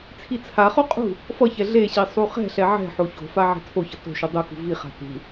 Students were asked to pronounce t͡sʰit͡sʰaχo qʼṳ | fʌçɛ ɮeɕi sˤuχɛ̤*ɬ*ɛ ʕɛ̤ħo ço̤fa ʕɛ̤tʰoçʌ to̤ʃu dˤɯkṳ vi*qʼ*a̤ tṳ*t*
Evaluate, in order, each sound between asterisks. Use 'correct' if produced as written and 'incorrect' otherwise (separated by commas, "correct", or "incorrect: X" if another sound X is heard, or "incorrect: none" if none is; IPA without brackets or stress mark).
correct, incorrect: χ, incorrect: none